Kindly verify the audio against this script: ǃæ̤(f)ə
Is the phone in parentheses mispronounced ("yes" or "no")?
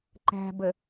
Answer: yes